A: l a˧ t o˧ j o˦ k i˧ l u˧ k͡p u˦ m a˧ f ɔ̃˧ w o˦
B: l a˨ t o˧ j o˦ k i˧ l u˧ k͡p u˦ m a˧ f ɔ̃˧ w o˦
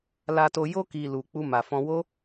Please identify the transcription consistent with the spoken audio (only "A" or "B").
A